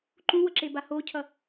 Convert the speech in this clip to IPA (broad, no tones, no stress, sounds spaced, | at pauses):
ǃ ũ w ʌ ǁ e b a h o cʰ ʌ